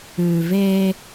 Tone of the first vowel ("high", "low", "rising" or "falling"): low